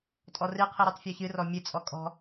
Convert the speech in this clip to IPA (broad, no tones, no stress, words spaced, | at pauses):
tʼɔrɨ qʰɨɾʉtˤfʲɔçɨ rɔmʲɨ t͡sʼɔkʼɔ̤